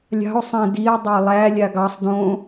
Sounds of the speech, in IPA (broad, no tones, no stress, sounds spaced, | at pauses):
lʲ ɑ̤ o̯ sˤ ẽ d i e̯ dˤ ɑ lˠ æ lʲ a ɡ ɑ sˤ d õ